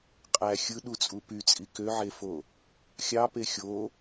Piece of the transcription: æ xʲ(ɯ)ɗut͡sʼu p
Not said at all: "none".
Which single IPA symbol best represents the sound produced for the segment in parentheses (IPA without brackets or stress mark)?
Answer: ɯ